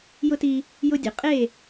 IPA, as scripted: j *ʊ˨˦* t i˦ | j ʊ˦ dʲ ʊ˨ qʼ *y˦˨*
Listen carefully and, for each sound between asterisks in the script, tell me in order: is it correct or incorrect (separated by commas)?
incorrect, incorrect